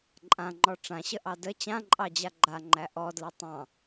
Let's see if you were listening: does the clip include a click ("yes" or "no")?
yes